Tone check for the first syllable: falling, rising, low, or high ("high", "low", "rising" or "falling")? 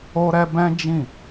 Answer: high